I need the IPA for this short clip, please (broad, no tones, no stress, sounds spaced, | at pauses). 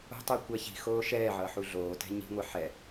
o̤ tˤ ɯ kʷ ɛ ç i̤ x oː ʃ ɛː ʕ ʌː ħ u ɮ oː t ɛ̤ ɲ i̤ ŋʷ e ħ ɛ